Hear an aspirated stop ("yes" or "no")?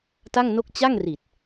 no